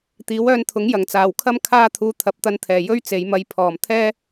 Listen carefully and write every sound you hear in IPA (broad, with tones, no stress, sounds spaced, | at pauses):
t̪ iː˨˥ w œː˧ n t̪ʰ ʊ˨˥ ŋ j ɐ˨˩ ŋ t͡s aː˨˩ w kʰ ɐ˥ m kʰ aː˥ t̪ʰ uː˧ t̪ʰ ɐ˨˥ p̚ t̪ ɐ˧ n t̪ʰ ɛː˨˩ j ɵ˥ ɥ t͡s e˨˧ j m ɐ˧ j pʰ ɔː˨˩ m t̪ʰ ɛː˥